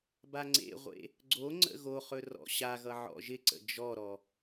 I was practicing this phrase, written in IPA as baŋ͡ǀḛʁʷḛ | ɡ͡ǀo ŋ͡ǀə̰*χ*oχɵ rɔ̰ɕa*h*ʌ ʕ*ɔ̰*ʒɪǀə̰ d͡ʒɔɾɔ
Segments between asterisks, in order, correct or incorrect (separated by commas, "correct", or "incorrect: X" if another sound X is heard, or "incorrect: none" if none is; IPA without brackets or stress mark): incorrect: ɣ, incorrect: ɣ, correct